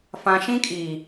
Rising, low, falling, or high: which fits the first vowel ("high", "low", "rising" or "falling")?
low